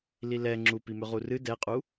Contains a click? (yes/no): yes